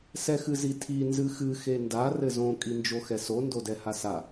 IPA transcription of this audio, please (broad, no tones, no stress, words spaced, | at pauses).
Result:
sɛxɨzitʰi nzɨxɨ xenda rɘzõ kʼind͡ʒoxɛso ndodɛhasa